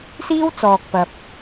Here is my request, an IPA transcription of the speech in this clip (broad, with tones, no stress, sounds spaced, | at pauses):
s iː˥ w t͡s ɔː˨ k̚ p ɐ˨ p̚